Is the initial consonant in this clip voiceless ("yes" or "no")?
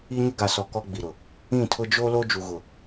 no